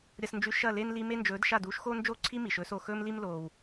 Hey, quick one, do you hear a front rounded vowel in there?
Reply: no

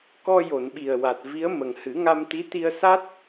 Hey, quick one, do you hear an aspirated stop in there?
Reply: no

